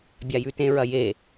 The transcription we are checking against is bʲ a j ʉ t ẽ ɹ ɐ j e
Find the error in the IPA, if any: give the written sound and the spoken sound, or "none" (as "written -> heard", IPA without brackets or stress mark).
none